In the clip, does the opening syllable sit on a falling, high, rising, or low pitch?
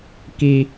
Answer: high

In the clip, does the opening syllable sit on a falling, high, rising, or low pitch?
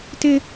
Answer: high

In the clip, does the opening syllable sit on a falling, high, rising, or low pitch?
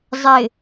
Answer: low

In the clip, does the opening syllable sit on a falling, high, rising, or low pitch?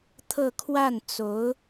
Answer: falling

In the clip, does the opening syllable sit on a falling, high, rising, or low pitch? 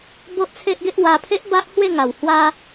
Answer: high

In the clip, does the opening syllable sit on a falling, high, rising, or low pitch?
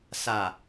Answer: low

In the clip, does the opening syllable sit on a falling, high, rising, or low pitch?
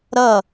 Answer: falling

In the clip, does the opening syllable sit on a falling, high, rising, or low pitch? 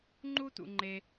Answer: high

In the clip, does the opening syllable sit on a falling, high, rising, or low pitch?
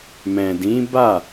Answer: low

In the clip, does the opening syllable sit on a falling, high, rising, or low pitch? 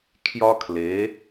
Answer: high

